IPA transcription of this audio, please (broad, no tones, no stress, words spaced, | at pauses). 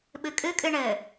ɓɨkʼɨkʼɨ ɳɘ